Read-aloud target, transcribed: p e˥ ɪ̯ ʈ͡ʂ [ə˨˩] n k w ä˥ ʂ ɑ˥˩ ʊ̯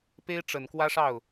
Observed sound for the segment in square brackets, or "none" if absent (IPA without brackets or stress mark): ə˨˩